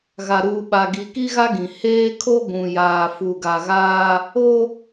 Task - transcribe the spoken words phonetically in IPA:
ɣ a˨ ɾ uː˨ ɓ a˨ ɡ i˨ k i˦ ɣ a˦ ɡ ĩ˨ h eː˦ kʰ o˦ ɡʷ ũ˨ j aː˨ f u˨ ɡ a˨ ɣ aː˦ | o˦

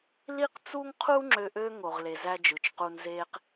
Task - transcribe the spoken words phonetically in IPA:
l i˥ q t͡s u˥ ŋ qʰ u˥ ŋ͡ǁ ø˦ ʔ ø˥ ŋ o˨ ʁ l e˨ z æ˥ d͡ʒ ɯ˨ t͡ʃ q u˦ n z e˥ q

